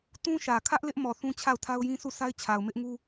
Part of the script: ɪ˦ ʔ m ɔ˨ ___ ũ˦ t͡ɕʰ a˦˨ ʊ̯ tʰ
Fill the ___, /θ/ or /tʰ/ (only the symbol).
θ